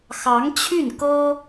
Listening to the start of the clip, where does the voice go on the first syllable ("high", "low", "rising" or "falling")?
rising